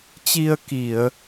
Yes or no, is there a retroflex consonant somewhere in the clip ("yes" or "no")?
no